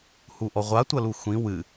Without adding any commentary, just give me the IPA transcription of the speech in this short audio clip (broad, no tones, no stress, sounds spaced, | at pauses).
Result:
h u ʔ ɔ ʁʷ a tʷ ɐ l u xʷ ĩ w ɨ